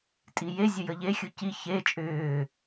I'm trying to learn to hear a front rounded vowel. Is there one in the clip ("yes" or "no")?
yes